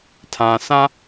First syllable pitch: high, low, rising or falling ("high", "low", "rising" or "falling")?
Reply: low